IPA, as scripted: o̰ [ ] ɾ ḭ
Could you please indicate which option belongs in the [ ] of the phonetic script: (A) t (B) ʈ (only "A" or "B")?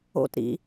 A